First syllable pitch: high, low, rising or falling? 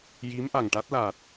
rising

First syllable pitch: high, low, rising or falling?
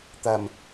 low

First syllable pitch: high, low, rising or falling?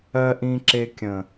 high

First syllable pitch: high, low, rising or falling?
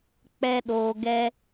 high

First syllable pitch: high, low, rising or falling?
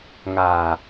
low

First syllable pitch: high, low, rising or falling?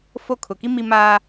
falling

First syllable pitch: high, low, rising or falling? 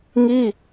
falling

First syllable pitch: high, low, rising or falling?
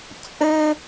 high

